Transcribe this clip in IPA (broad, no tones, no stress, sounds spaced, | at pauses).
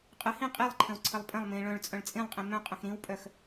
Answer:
qʼ ə h ĩ qʼ i lˠ ǃʰ ə̃ w ǀʰ ə lˠ pʼ ə̃ lˠ m ĩ ɭ œ̃ ɭ t͡sʼ œ̃ ɭ t͡sʼ ĩ lˠ qʼ ĩ m œ̃ qʼ ə̃ x ɾ ĩ w pʼ œ x